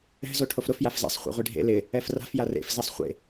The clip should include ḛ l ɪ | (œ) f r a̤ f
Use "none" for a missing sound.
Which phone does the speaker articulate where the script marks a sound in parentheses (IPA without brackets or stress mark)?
ɛ